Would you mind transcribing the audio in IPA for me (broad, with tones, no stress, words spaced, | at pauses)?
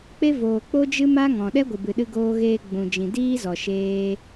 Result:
k͡pe˦ voː˨ k͡po˦d͡ʒɨ˦ ma˦ ŋɔ̃˨ ɗɛ˦ɡʷɨ˨bɨ˨ ɗɨ˧ɡoː˧ɣeː˧ ɡ͡bũ˨d͡ʒĩ˨ diː˦zɔ˨ʃeː˧